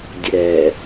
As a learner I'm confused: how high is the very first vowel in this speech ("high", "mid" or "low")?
mid